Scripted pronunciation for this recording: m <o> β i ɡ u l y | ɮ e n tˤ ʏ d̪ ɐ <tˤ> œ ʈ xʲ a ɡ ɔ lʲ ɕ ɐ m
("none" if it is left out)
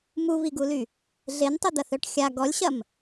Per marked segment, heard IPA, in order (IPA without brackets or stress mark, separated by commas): u, θ